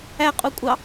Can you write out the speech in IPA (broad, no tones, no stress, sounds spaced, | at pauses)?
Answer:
æ qʼ u kʷʼ ɑ